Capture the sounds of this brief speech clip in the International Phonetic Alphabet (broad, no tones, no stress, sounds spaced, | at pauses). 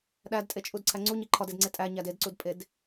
ɗ æ d tʼ e t͡ʃʼ u d ǀʰ æ ŋ͡ǀ u ɲ i ǃʰ ɒ d e d ŋ͡ǀ e tʼ æ ɲ æ d e d ǀ u d pʼ e d